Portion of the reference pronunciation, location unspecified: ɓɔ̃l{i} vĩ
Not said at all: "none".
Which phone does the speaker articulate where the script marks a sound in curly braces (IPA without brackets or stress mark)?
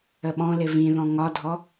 ɪ